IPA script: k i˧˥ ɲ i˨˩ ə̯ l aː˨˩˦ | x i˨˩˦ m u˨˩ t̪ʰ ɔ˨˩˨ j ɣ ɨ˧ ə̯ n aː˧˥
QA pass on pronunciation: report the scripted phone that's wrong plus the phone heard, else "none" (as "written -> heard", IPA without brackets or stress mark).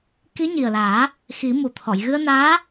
none